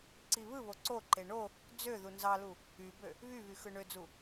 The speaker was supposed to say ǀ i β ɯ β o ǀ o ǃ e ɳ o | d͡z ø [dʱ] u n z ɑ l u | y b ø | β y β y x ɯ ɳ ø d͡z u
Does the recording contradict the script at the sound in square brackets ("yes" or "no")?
yes